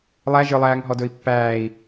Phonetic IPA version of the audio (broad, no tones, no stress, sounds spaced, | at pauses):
lˠ æ ʒ ə˞ lˠ æː ŋ ɦ ɔ d ɵ i̯ pː æː i̯